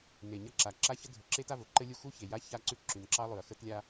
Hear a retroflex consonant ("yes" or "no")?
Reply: no